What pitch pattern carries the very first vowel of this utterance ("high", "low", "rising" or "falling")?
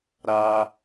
high